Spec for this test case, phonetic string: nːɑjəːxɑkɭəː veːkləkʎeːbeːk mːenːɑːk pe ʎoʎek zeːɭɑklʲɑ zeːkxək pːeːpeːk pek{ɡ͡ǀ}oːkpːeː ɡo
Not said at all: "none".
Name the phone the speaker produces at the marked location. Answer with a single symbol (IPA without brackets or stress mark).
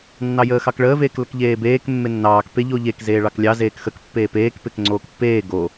ŋ͡ǀ